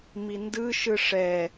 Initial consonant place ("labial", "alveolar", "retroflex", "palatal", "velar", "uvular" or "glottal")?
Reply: labial